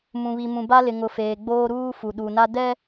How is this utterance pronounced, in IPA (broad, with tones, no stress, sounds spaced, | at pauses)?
m ũ˨ β i˨ m ũ˨ b a˦ l ɪ˨ ŋ ʊ˨ f eː˨ ɡ͡b oː˦ ɾ uː˦ f u˨ ɗ u˨ n a˦ d ɛ˦